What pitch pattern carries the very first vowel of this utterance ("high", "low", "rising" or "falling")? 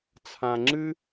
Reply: low